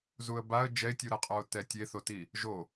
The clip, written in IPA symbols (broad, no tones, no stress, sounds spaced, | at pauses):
z u ə̯ b a ə̯ d͡ʒ ɛ ɪ̯ tʲ u ɾ a qʼ ɔ ʊ̯ t ɛ tʲ e θ o t i | ʒ o